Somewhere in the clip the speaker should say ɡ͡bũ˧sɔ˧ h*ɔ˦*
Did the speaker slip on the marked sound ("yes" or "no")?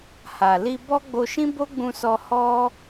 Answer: no